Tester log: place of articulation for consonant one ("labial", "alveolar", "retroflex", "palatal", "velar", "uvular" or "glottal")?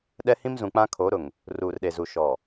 alveolar